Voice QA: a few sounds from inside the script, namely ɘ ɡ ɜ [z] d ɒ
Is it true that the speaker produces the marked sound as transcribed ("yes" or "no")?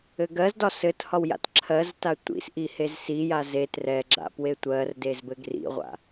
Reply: yes